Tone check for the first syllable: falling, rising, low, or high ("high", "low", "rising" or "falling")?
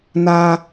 low